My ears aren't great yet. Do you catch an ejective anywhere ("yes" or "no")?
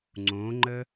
no